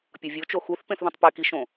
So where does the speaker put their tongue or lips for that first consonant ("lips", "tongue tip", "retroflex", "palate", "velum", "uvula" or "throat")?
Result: lips